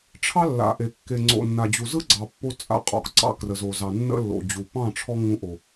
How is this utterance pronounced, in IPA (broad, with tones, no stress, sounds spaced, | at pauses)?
ʈ͡ʂʰ ɑ˦ lː a̰˨ ʔ e˨ kː e˨ ŋ͡ǀ o̰˨ nː a˨ d͡ʑ u˨ z ɯ˦ ɡ͡ǀ ɑ˨ pː o˧ t͡sʼ a̰˦ qʼ ɔ̰˨ k ǀ ɑ̰˧ k r ə˨ z o˨ z ɑ˨ nː ə̰˦ lː o̰˨ d͡ʑ u˨ p ɑ̃˦˨ ʈ͡ʂʰ ɔ˧ ŋ ũ˧ ʔ o˨